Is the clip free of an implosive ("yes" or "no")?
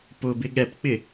no